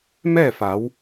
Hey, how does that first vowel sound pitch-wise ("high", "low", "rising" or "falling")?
falling